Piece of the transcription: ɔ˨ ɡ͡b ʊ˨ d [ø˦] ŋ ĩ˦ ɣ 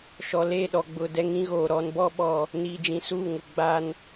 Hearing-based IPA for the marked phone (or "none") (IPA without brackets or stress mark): ɛ˦